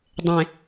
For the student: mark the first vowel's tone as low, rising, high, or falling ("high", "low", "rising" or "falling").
low